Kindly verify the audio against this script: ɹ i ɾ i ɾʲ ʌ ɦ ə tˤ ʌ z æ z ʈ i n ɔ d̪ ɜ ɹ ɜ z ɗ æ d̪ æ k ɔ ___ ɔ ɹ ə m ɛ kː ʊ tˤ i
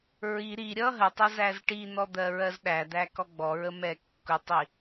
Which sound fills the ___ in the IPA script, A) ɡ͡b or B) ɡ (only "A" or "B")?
A